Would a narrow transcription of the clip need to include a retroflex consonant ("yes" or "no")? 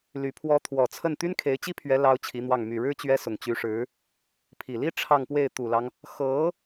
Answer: yes